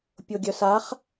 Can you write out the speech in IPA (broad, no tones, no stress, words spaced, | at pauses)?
pʲoɡʲœsaχ